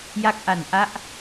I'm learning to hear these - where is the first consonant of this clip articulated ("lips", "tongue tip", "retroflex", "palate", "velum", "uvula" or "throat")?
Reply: palate